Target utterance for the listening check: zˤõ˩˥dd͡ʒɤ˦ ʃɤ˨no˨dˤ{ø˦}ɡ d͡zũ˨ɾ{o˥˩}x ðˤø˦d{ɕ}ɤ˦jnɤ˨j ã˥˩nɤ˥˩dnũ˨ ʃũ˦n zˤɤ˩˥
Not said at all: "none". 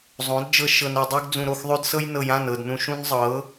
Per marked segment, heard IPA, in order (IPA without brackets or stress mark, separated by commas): ø˦, o˥˩, s